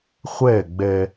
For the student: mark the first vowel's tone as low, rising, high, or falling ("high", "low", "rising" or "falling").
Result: falling